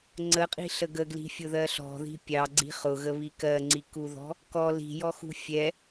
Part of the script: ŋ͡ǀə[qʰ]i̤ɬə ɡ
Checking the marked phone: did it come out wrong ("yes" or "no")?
yes